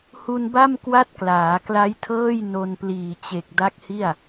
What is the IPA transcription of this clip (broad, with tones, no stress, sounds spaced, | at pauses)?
h u˧ n b a˥˩ m k w a˥˩ t̚ k l aː˩˦ k l a˦˥ j tʰ ɤː˥˩ j n o˧ n p l iː˨˩ t͡ɕ e˨˩ k̚ d a˦˥ k̚ h i˥˩ a̯